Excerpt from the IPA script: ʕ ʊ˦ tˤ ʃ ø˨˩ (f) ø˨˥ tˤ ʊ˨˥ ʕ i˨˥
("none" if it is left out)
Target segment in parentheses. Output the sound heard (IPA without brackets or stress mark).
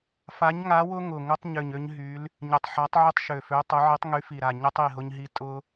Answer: f